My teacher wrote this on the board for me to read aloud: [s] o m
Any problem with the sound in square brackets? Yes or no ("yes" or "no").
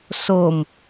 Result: no